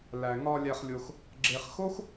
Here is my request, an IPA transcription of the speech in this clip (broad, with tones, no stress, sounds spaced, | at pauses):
l æ˨ ŋ ɒ˧ lʲ æ˧ χ lʲ o˧ x | ɡ͡ǁ e˧ χ x o˦ x